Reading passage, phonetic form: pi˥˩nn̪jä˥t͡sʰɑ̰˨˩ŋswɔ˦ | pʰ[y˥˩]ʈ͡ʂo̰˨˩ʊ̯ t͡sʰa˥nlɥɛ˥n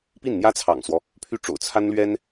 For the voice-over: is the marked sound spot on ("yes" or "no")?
yes